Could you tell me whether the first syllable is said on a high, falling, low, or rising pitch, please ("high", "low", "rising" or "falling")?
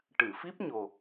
low